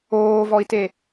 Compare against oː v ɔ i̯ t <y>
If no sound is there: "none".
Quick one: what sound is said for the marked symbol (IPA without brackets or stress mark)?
e